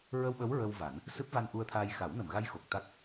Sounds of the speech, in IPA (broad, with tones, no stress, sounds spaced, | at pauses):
ɹ ə˧ w ɓ ə˧˥ w ɹ ə˧ w v a˨˩˦ n | s ɨ˦˥ p̚ v a˧ n ʔ u˧ ə̯ t̪ʰ aː˧ j x a˨˩˦ w n ə˨˩˨ m ɣ a˧ j x o˨˩ k̚ t̪ a˦˥ k̚